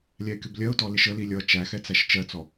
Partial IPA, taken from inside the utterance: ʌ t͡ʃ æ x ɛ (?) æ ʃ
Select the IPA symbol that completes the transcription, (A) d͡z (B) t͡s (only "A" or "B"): B